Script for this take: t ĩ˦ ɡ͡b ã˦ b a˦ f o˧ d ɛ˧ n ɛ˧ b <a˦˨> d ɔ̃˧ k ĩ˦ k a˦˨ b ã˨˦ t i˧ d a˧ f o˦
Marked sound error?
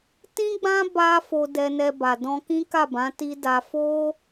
yes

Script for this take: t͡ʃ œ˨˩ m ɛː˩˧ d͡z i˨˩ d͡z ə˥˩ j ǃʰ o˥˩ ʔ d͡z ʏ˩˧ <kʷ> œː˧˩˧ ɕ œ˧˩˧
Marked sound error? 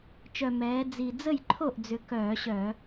yes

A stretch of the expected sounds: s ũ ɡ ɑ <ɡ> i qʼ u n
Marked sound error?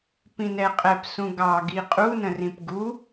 no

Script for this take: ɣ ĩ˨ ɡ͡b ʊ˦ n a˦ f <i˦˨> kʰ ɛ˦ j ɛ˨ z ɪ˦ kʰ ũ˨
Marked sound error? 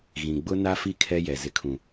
no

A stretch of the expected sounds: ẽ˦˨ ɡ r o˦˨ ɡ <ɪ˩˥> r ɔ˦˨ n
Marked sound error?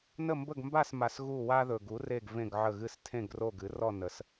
yes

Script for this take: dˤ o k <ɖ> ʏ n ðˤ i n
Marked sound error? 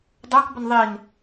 yes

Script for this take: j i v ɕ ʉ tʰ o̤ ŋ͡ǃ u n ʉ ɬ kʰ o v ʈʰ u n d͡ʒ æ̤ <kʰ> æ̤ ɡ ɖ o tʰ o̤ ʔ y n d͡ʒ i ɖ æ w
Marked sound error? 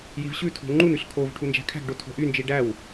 no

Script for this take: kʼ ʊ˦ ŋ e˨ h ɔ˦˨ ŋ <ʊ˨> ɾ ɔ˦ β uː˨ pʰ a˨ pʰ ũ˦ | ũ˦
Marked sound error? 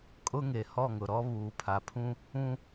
no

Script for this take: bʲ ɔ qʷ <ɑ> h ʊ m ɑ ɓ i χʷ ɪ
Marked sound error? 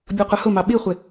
yes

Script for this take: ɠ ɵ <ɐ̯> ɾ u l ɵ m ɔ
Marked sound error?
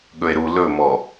yes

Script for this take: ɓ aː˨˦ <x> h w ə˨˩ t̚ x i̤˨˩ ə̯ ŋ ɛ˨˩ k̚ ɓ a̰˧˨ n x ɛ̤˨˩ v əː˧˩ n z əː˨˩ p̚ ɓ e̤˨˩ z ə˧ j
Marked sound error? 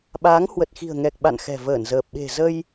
yes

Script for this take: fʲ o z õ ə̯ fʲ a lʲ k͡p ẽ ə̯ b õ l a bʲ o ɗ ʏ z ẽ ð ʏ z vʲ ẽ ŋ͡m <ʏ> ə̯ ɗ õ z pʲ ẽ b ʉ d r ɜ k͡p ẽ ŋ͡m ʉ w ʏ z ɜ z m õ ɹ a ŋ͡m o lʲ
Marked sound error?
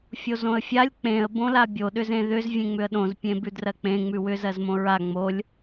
no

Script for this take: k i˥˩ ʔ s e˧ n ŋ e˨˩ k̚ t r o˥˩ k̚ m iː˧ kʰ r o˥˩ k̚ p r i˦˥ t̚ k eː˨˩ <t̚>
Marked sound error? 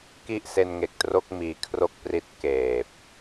yes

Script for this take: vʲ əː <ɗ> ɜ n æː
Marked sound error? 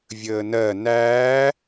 yes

